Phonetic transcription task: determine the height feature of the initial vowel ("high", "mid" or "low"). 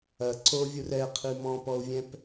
low